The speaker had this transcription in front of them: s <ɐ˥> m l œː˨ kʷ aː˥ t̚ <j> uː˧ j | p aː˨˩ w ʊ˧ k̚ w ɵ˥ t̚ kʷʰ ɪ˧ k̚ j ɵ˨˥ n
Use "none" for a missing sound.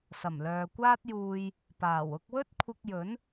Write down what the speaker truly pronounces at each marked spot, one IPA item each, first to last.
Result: ɐ˨˩, j

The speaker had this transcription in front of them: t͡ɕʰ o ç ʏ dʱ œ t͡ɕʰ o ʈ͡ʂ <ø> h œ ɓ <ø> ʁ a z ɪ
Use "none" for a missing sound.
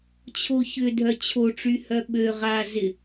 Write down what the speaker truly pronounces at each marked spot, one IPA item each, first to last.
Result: y, ø

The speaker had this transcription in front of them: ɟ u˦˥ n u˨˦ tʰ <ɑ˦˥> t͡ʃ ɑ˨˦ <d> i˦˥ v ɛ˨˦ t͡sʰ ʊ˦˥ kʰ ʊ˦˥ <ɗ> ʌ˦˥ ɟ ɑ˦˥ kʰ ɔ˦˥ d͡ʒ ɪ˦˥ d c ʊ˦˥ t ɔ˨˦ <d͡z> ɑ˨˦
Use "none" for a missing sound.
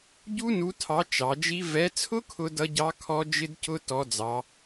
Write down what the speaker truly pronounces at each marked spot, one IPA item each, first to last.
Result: ɑ˨˦, d͡ʒ, d, d͡z

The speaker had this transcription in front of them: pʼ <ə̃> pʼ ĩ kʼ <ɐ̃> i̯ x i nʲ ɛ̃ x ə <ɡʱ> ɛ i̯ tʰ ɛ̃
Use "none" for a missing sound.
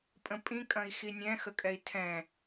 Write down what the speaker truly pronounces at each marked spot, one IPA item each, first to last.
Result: ə̃, ɐ̃, kʼ

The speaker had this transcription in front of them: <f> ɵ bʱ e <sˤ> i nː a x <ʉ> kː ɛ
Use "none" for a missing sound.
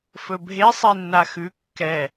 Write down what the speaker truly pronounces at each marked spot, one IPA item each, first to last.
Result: f, sˤ, ʉ

